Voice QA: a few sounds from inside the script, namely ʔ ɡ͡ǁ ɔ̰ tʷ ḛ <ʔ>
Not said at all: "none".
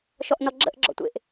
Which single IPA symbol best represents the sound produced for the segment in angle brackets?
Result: ʔ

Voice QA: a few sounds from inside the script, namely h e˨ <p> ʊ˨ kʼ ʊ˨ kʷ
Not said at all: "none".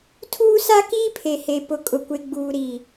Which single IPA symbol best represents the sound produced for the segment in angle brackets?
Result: p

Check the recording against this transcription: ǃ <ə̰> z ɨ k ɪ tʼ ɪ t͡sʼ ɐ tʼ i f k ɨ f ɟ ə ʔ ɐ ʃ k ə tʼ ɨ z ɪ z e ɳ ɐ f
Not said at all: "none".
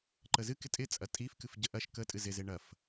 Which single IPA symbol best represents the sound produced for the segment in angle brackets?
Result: ə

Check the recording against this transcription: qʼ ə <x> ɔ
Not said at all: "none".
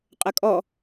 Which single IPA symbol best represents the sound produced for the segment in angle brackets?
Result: kʼ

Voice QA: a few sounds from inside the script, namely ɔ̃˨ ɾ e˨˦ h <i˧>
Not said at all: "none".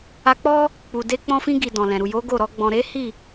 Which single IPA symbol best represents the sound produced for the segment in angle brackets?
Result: i˦˨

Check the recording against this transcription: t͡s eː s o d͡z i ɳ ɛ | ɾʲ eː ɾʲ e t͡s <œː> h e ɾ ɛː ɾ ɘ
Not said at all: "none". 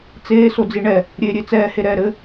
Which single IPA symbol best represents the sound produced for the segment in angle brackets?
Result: ɛː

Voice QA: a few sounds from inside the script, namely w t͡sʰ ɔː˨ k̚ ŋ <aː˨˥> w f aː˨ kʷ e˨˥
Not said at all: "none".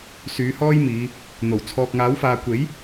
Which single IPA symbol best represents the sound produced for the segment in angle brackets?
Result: aː˨˥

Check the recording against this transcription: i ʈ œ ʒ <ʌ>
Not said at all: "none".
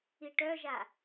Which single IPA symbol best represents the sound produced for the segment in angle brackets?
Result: a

